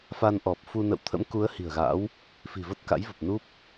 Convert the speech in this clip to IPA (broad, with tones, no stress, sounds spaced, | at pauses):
f a˧ n ʔ ɔ˨˩ p̚ f u˧ n ə̰˧˨ w t̪ʰ ə̰˧˥ m k u˨˦ ə̯ h i̤˨˩ ə̯ ɣ a̰˧˥ w | f i̤˨˩ v ə˦˥ t̚ k a̰˧˥ j v ə˨˩ p̚ n u˦˥ p̚